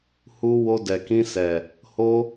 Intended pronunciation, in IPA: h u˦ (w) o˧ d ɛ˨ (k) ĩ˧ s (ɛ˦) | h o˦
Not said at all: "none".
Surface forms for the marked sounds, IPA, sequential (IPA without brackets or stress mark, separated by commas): w, k, ɛ˨